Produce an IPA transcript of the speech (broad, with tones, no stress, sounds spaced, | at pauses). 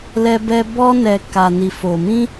l ɛ˦ b ɛ˦ b ɔ˦ n ɛ˧ k a˧ n i˧ f o˧ m ĩ˦